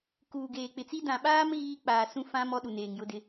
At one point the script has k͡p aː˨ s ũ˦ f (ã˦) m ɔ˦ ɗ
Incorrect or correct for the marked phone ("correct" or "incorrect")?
correct